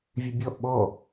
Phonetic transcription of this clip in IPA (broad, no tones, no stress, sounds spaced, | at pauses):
vʲ ʉ bʲ ɔ ʔ ɓ ɔ